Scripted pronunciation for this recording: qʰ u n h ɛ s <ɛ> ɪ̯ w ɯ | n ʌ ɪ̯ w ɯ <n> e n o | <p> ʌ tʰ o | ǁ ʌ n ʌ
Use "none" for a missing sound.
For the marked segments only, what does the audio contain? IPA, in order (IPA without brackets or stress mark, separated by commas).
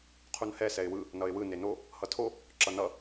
ɛ, n, h